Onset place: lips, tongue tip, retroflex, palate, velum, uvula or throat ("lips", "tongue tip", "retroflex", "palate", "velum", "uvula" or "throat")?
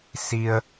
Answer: tongue tip